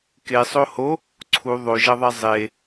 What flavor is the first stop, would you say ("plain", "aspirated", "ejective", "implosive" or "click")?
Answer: plain